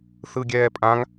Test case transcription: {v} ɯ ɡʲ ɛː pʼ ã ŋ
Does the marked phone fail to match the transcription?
yes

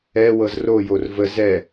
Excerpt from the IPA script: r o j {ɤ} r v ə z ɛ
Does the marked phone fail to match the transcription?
yes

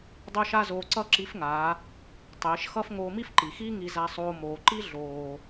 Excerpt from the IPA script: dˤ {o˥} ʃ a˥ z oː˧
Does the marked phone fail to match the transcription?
no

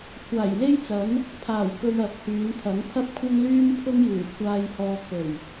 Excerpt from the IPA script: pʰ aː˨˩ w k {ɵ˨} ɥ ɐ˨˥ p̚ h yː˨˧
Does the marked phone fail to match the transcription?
no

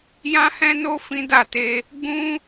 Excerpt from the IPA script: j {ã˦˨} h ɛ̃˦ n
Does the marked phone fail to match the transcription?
yes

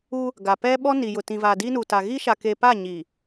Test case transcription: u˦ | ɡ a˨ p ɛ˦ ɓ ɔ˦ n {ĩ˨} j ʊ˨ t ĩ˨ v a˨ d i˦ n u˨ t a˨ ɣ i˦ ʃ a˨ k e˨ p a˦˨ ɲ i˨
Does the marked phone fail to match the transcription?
yes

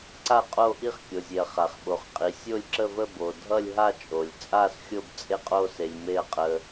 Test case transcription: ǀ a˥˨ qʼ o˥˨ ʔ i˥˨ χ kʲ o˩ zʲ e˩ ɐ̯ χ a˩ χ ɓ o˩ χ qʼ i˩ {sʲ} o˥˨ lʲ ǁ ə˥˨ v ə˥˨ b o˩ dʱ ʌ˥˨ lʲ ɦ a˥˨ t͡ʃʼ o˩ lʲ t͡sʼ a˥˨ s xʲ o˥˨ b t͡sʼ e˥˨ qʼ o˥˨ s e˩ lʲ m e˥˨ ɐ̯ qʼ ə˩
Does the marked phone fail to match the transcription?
no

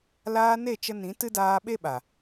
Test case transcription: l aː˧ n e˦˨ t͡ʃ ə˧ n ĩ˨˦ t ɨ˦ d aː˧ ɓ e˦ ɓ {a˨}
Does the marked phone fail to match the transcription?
no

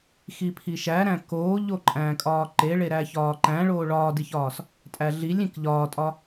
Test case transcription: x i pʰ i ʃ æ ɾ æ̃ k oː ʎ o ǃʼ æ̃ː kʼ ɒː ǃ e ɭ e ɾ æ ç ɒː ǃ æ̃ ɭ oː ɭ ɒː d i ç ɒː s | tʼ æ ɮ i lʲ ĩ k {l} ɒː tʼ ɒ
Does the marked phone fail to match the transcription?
yes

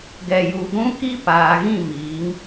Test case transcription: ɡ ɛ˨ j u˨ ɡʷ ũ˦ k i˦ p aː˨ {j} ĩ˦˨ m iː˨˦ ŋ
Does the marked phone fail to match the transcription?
yes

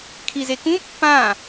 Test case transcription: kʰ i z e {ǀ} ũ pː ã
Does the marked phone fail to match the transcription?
yes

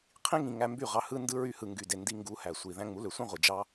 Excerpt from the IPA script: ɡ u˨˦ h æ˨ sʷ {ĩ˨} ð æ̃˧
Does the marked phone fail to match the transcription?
yes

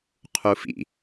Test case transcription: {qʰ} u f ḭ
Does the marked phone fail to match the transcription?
no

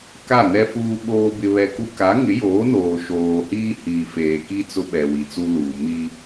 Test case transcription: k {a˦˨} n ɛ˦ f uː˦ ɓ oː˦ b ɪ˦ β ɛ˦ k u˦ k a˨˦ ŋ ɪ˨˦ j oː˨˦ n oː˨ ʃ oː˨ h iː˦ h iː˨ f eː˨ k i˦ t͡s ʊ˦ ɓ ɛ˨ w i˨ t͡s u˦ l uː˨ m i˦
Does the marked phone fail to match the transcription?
no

